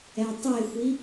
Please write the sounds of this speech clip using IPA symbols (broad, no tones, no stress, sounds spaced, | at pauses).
ɛ tˤ e xʷ i